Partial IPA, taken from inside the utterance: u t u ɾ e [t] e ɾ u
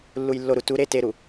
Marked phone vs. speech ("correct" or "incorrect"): correct